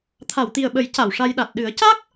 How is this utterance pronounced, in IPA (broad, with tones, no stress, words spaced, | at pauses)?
t̪ʰa˨˩˨wt̪i˨˩ə̯ɓə˨˩˦j ca˨˩˨wʂa˧jɗa˨˩t̚ ɗɨ˨˩˦ə̯ca˦˥k̚